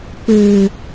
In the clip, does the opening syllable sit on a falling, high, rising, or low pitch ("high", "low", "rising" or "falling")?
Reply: low